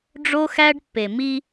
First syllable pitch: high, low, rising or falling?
high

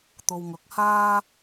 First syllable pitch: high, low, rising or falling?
low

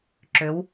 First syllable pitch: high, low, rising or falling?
rising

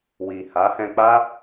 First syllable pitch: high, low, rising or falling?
low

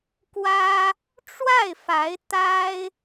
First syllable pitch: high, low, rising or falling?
high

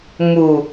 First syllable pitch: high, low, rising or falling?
low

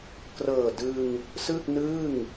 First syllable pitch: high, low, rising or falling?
low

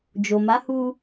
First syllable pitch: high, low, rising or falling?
low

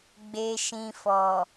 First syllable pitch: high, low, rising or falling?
low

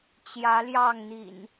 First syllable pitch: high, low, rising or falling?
rising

